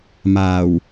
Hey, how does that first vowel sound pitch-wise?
low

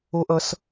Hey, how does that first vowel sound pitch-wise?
high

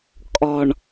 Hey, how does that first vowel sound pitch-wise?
low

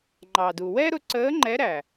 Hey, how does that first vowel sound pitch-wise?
low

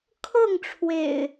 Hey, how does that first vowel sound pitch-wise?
falling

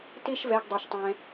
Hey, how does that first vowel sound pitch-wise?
high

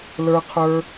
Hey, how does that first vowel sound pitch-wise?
low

